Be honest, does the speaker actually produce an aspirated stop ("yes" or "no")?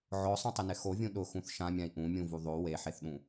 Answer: no